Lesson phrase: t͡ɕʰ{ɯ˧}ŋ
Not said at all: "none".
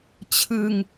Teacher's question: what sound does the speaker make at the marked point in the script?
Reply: ɯ˧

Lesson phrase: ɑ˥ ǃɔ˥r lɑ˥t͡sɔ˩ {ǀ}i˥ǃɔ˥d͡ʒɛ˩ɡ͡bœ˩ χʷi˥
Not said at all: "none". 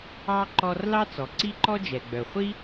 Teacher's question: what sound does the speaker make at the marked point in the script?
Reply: ǀ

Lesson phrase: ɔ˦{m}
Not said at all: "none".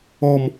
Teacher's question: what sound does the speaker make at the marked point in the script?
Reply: m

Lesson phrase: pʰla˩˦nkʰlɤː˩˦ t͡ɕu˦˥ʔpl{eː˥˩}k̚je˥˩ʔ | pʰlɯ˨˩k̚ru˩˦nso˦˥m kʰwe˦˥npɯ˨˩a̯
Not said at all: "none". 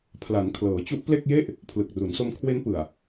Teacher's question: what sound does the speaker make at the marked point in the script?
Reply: e˥˩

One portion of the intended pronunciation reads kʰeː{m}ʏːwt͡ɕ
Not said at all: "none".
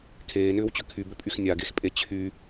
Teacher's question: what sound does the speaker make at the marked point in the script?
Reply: n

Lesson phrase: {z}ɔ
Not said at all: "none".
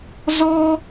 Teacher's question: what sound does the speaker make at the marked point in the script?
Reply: z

